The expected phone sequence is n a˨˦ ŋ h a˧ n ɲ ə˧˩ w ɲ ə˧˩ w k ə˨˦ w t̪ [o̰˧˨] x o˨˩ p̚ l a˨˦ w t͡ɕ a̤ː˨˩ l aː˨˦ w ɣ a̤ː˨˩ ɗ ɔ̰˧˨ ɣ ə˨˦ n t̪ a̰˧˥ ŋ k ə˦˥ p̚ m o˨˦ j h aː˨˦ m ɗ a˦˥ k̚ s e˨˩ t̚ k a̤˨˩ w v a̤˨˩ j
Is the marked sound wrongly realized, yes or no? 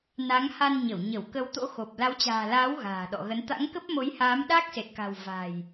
yes